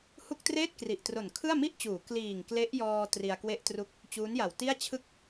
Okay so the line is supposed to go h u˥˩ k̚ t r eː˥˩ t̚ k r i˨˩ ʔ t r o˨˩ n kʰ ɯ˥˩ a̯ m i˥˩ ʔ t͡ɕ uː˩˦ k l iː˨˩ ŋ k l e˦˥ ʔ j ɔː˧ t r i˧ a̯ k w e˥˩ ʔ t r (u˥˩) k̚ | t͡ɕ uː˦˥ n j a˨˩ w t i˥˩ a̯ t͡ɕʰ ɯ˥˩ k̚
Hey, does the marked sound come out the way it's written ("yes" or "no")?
yes